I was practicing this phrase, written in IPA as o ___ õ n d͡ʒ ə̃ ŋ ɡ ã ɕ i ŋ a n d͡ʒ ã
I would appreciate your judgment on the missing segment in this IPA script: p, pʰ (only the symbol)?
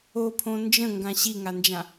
pʰ